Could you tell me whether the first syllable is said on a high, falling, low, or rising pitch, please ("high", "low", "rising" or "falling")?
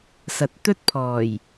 rising